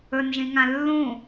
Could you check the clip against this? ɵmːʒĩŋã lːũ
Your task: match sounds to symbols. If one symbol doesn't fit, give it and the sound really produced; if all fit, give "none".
mː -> n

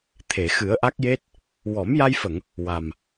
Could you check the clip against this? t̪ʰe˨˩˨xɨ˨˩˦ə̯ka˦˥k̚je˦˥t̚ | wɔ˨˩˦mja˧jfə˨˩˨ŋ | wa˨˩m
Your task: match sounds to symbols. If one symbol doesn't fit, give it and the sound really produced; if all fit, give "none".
k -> ʔ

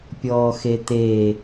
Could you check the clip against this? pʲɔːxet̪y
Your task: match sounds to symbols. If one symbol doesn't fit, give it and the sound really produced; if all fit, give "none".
y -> e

